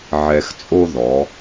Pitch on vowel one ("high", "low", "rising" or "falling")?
low